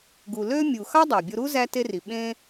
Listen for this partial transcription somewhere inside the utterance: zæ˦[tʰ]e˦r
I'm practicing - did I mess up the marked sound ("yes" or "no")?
yes